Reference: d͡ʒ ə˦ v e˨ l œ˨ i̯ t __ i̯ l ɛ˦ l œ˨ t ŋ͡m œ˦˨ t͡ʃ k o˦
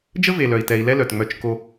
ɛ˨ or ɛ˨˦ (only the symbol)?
ɛ˨